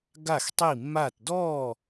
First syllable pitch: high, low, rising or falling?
falling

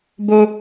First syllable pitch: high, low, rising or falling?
high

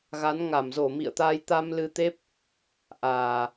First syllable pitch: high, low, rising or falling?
rising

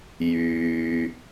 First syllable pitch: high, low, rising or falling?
low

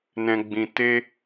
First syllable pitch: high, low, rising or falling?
high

